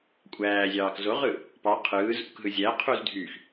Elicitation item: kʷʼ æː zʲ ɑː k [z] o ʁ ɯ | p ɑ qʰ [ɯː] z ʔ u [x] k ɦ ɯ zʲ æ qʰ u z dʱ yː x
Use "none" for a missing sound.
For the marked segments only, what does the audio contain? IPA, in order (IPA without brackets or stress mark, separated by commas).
z, ɯː, none